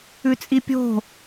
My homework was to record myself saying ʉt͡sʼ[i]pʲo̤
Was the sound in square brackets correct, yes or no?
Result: yes